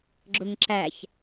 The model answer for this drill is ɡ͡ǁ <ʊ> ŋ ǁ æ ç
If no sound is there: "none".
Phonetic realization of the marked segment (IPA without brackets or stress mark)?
ʊ